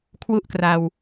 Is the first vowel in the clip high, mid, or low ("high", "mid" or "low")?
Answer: high